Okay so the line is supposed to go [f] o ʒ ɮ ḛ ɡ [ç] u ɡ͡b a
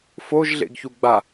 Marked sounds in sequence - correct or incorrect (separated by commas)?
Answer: correct, correct